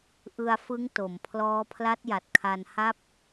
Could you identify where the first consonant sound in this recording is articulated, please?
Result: glottal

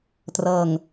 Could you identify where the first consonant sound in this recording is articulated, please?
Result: alveolar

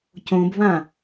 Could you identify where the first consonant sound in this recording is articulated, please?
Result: palatal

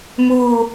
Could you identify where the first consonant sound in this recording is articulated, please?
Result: labial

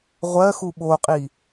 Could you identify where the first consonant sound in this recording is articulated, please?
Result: uvular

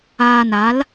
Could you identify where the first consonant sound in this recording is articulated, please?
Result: alveolar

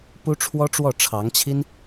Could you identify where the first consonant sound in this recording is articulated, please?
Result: labial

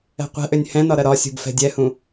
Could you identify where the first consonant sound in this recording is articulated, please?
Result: uvular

